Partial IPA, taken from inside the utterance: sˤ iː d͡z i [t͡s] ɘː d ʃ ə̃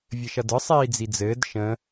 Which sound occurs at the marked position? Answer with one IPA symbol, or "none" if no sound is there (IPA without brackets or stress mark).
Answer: d͡z